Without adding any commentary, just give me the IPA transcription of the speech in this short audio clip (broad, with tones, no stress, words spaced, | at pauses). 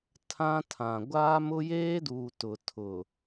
tʰã˦tʰã˨ ɡʷaː˦mʊ˦jeː˦duː˨ tʊ˨tʰʊ˨